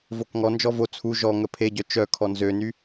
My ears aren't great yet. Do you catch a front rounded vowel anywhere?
yes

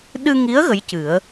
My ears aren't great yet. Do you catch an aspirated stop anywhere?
no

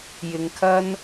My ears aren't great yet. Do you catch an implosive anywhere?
no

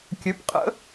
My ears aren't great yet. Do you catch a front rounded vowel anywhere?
yes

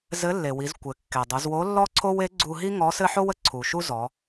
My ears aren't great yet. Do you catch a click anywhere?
yes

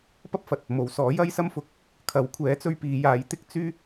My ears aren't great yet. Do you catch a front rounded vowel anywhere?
yes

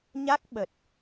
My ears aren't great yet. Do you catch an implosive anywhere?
yes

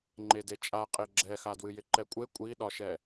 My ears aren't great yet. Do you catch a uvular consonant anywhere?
yes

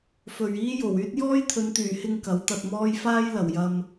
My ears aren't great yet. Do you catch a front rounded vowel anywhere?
yes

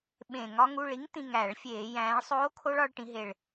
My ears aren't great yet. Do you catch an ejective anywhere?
no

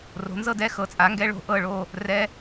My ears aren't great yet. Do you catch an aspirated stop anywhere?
no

